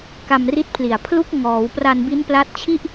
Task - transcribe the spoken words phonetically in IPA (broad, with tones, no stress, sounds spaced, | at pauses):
k a˧ m r i˦˥ t̚ pʰ l i˨˩ a̯ pʰ l u˦˥ k̚ ŋ ɔː˩˦ w p r a˧ n b i˦˥ n p l a˦˥ t̚ t͡ɕʰ i˥˩ ʔ